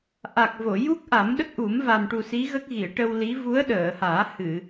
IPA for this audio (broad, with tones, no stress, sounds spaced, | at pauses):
ʔ a˨˩ k̚ v o˨˩˨ j u˦˥ k̚ ʔ a˨˩˦ m ɗ ə˦˥ k̚ ʔ u˨˩˦ m v a˨˩ m ʈ u˨˩ s i˧˥ ɣ ə˦˥ k̚ ɣ i˨˩˨ ə̯ ʈ ə˧ w l i˧˥ v u˧˥ ə̯ ɗ əː˨˩˨ h aː˨˩˦ h ɨ˨˩˨